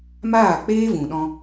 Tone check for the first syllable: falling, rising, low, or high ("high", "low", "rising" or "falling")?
falling